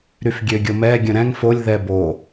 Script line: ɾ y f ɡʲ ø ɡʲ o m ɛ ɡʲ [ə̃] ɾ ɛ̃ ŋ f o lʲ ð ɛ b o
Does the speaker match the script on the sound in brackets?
yes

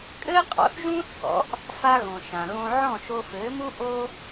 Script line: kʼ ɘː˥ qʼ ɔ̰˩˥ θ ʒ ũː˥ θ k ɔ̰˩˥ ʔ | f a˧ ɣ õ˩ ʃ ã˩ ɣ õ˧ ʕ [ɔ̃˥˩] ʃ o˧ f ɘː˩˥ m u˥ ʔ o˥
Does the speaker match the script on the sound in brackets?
yes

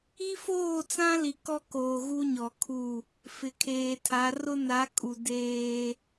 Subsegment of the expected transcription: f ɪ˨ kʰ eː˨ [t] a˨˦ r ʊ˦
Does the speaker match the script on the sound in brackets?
no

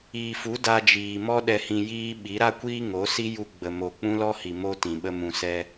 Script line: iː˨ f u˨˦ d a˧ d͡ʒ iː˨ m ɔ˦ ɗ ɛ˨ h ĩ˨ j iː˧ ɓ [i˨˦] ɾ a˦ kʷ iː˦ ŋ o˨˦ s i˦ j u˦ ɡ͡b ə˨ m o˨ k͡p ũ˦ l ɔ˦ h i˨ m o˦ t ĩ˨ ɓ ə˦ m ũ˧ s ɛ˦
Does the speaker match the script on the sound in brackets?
yes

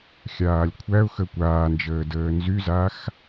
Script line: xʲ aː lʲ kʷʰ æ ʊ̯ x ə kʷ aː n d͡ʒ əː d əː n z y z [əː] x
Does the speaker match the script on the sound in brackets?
no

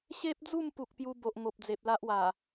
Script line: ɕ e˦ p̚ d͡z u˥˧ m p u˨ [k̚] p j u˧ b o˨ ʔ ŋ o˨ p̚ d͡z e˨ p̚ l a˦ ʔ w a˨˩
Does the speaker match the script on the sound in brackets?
yes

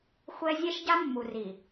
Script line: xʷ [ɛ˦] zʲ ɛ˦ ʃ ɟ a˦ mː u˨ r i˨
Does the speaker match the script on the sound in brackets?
yes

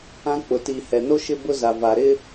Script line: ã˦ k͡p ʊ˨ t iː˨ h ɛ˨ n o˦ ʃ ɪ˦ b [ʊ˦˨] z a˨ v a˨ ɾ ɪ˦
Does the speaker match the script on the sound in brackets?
no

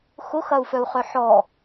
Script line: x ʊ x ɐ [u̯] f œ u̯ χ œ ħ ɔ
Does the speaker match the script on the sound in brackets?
yes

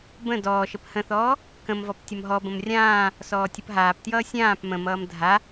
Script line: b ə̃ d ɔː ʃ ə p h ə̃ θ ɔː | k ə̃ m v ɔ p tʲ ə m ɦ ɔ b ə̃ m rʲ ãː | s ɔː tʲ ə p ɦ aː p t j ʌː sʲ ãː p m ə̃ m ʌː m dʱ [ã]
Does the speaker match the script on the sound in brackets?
no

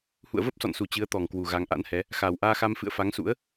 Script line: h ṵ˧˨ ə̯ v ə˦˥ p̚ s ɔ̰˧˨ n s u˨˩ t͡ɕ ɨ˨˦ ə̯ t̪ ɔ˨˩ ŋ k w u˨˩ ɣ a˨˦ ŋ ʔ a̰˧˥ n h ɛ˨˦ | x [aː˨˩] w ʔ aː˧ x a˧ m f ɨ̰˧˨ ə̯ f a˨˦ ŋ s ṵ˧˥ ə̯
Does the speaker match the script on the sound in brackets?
yes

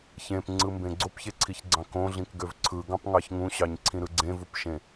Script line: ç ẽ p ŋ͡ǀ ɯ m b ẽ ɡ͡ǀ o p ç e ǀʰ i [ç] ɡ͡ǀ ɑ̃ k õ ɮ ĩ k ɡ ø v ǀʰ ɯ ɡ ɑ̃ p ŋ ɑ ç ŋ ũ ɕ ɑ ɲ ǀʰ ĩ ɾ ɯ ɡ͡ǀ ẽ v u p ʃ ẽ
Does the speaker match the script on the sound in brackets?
yes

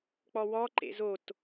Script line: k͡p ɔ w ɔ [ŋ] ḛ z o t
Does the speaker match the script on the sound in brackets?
no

